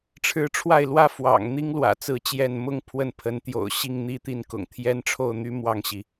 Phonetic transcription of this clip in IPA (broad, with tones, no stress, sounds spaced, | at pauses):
ʈ͡ʂʰ ɻ̩˧˥ ʈ͡ʂʰ w a˥˩ ɪ̯ l w ä˥ f w ɑ̰˨˩ ŋ n̪ i˥ ŋ l w ä̰˨˩ t͡s ɹ̩˧˥ t͡ɕ j ɛ˥˩ n m ʊ˥ ŋ pʰ w ə˥˩ n pʰ ə˧˥ n t̪ j o̰˨˩ ʊ̯ ɕ i˥˧ ŋ n̪ i˥˧ t̪ i˥˩ n k ʊ̰˨˩ ŋ t̪ʰ j ɛ˥ n ʈ͡ʂʰ o˥˩ ʊ̯ n̪ y˥ m w ɑ˥˩ ŋ ɕ i˩